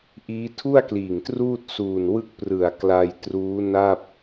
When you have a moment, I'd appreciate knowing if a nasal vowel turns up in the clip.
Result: no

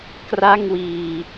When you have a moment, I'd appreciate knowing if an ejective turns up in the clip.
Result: no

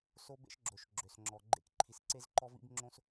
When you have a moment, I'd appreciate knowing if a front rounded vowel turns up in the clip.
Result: yes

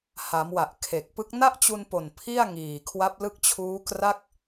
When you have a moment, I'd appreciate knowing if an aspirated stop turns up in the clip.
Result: yes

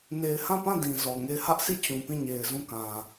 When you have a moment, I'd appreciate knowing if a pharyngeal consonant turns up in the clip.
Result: no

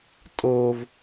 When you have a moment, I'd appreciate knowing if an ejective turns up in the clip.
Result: yes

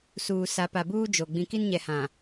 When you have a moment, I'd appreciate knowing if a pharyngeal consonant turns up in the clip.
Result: no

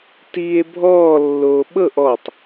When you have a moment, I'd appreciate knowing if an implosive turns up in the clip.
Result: yes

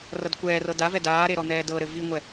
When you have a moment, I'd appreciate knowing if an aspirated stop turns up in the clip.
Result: no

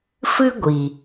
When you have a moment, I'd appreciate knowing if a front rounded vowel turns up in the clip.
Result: no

